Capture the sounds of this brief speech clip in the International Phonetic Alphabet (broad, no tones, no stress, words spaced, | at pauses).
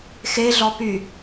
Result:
xeɮɔ py